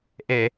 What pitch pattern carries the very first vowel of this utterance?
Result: low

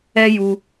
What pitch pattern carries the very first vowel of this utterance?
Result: high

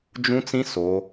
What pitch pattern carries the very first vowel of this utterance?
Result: high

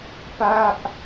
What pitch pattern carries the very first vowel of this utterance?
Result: high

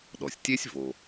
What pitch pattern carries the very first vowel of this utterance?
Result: low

